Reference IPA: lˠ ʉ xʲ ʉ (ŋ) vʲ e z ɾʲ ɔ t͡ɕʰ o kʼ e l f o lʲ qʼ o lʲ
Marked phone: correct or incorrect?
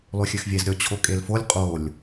incorrect: x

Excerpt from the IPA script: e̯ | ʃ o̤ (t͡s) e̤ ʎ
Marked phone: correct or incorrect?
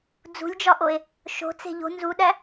correct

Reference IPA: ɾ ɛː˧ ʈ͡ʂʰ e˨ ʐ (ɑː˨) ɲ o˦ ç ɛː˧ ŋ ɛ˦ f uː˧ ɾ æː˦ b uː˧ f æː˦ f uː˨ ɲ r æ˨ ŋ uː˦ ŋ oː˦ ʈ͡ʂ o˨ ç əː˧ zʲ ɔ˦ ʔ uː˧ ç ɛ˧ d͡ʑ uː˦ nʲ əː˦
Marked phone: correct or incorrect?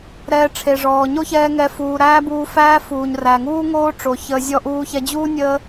incorrect: ɔː˨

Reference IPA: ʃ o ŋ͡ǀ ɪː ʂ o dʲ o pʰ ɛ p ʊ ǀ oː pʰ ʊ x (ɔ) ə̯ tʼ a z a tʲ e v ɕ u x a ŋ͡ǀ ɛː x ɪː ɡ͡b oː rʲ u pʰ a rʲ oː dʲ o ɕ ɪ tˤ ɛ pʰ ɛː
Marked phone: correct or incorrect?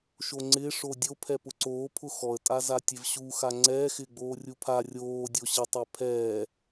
correct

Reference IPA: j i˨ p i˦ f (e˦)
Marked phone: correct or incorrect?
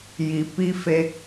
correct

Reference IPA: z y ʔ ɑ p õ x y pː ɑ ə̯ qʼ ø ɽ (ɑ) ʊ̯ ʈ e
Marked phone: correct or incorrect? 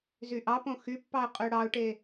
correct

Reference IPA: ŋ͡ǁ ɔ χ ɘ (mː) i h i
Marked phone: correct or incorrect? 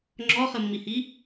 correct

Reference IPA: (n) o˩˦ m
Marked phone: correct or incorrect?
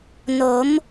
correct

